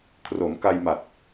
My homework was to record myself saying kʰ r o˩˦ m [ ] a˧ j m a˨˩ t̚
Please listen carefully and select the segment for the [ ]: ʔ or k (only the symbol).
k